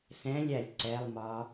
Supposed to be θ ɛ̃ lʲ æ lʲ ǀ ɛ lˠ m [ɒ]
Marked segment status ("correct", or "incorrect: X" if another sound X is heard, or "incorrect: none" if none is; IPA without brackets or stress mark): correct